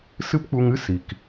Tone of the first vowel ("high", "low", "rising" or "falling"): high